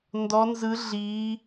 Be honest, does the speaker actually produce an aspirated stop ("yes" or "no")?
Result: no